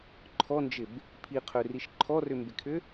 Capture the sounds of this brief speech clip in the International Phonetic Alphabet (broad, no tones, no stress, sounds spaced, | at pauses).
ǃʰ ɔ n d͡ʒ ɪ b | pʰ i qʰ ø r i ʃ ǃʰ ɔ r ʏ m b ɪ kʰ ʏ